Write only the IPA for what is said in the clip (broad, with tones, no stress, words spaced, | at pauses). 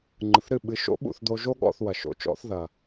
ŋ͡ǃɯ˨θɾɨ˦˨ɓɨ˨˦ʃo̰˦ ɓṵ˦˨θd̪o˧ʒo˦ ɠɔ̰˦˨θwɐ˨ ʃo̰˧t͡ʃɔ̰˧θ ðɐ˨